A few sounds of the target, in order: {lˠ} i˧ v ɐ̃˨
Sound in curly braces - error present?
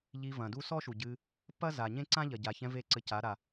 yes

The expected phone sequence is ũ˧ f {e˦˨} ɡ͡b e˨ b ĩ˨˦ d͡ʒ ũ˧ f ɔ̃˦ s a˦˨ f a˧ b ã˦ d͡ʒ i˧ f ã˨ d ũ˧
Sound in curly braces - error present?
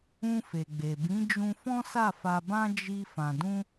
yes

